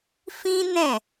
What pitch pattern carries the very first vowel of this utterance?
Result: high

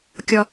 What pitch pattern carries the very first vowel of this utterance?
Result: high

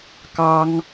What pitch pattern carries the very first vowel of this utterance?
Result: high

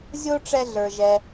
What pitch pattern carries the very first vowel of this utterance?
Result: high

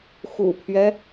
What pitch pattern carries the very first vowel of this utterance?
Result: low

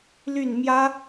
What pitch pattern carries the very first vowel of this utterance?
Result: falling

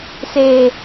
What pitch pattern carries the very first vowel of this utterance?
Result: low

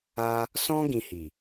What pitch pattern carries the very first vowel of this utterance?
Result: high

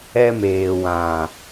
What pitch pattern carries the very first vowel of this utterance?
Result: high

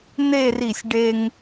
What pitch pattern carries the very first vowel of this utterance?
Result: falling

